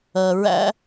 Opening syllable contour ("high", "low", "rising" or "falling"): low